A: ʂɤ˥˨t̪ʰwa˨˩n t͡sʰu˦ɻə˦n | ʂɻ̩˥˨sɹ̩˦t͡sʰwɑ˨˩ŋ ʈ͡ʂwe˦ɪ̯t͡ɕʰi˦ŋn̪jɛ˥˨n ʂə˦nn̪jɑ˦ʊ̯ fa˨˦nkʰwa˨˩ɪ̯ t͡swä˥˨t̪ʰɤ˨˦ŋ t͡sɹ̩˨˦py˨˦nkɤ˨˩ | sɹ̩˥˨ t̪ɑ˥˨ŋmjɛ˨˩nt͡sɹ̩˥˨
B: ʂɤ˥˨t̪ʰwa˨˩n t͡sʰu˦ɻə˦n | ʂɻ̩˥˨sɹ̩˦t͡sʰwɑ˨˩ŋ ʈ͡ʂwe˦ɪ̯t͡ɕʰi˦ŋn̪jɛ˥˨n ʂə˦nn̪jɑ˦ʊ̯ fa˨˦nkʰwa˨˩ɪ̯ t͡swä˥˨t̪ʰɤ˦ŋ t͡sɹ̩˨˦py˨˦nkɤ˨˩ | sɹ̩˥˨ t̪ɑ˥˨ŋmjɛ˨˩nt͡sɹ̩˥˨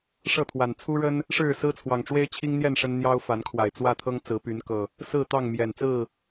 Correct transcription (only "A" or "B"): B